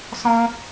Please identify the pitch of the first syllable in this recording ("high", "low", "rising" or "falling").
high